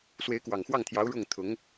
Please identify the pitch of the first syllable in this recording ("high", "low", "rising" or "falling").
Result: rising